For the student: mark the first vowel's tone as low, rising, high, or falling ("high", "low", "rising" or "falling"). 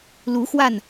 rising